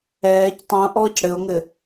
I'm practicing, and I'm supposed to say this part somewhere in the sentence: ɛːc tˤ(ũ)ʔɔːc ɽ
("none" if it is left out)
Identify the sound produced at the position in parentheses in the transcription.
ũ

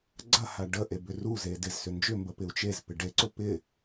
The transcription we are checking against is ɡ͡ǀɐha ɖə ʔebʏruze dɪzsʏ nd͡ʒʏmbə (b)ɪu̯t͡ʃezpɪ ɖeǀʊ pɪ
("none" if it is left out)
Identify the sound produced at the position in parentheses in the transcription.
p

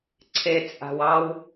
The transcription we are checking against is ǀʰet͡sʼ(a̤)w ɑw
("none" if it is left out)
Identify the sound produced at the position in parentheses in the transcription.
a̤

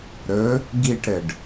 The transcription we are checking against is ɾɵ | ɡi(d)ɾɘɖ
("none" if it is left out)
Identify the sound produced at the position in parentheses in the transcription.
ʈ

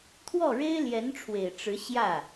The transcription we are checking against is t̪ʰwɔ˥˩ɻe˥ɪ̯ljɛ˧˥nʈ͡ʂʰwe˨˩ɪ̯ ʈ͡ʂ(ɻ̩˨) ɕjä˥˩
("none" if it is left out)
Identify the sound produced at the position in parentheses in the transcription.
ɻ̩˧˥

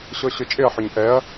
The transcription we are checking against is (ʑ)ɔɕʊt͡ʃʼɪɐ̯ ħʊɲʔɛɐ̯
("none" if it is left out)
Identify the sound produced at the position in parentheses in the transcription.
ɕ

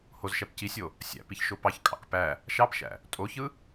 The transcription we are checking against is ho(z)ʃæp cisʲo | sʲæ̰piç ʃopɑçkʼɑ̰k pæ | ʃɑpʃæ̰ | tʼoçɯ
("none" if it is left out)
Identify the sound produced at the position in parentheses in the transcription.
z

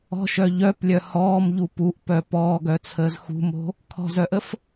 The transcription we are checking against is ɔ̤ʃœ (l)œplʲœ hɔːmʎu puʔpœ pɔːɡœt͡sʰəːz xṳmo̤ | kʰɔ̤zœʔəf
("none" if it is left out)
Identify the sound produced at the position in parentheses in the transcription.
ʎ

